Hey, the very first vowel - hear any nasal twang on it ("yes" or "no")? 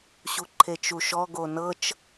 no